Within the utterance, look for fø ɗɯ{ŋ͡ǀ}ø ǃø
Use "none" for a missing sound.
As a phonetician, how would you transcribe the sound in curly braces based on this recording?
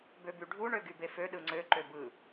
ŋ͡ǀ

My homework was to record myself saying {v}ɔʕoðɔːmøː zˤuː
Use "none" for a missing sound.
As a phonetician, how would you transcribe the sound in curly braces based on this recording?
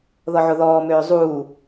ð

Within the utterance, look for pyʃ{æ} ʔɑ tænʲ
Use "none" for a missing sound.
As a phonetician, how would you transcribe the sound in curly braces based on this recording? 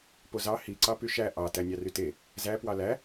æ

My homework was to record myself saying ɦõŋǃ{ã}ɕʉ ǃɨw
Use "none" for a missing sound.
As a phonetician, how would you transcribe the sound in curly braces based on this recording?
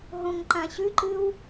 ã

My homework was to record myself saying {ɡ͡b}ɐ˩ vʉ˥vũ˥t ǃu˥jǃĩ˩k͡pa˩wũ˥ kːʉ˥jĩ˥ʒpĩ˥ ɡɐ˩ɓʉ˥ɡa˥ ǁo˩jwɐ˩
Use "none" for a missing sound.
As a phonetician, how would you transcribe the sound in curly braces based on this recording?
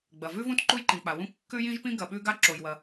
ɡ͡b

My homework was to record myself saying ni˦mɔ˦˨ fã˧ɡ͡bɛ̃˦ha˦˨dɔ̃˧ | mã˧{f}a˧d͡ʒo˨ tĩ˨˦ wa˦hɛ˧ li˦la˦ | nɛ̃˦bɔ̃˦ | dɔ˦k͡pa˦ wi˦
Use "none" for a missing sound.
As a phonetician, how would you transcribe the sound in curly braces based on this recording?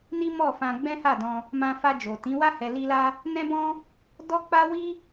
f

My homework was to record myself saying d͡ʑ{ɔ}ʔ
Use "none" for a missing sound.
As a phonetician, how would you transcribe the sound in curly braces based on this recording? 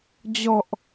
ɔ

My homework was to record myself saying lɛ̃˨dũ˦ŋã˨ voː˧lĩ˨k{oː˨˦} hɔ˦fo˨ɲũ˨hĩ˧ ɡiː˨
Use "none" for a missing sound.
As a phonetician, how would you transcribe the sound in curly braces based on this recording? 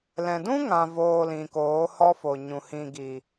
oː˨˦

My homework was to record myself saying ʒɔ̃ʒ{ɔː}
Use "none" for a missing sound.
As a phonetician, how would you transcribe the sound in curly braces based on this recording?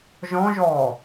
ɔː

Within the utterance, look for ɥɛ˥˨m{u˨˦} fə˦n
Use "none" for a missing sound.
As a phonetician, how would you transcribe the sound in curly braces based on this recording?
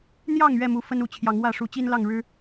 u˨˦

